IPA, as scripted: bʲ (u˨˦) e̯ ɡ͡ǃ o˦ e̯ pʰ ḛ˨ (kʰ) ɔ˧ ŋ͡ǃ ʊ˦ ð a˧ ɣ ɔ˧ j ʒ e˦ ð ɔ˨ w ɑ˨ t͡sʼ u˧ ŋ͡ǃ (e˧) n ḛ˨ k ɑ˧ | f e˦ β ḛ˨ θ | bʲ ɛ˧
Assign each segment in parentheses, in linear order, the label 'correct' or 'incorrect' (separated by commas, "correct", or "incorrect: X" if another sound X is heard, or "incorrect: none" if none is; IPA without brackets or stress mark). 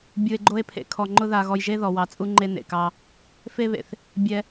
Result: incorrect: u˧, correct, correct